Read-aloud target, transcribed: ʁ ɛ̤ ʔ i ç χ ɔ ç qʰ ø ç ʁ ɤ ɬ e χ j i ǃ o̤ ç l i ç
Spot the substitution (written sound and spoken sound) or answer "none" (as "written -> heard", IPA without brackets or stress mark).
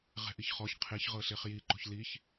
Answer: ø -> e